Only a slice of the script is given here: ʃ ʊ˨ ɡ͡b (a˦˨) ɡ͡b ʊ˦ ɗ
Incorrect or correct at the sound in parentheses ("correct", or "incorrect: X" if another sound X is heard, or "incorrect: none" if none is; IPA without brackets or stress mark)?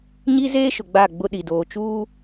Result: correct